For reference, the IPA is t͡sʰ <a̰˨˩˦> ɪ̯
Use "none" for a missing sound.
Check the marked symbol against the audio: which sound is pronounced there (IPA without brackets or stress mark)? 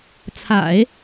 a̰˨˩˦